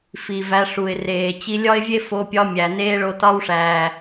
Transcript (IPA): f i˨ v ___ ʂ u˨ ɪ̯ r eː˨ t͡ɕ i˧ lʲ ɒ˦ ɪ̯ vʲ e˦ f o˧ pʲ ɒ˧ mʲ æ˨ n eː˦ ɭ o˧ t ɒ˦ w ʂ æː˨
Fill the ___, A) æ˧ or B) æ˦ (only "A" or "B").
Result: A